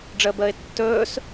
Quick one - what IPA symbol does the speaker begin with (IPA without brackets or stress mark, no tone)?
ɖ͡ʐ